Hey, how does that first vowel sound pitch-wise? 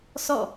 falling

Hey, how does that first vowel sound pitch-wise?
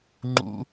high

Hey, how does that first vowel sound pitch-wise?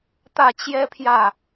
falling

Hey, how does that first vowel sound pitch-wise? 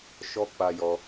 high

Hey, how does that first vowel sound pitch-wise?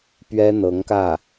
high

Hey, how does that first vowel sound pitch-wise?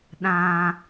high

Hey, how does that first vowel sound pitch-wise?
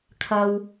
low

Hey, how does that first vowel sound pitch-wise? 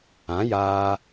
rising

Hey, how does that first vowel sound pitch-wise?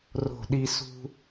falling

